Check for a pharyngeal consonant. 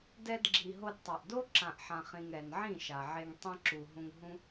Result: present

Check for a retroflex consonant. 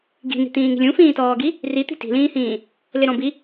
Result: absent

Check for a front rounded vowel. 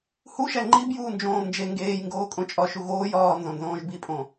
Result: absent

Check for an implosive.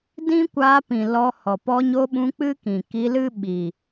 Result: present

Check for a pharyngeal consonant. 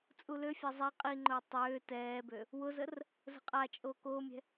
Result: absent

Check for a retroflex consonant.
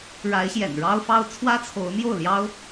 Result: present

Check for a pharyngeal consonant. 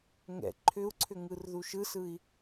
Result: absent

